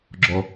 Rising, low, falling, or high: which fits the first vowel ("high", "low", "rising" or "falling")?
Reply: low